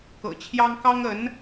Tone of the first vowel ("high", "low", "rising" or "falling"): low